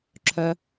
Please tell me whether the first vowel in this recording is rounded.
yes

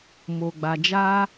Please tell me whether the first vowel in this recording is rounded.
yes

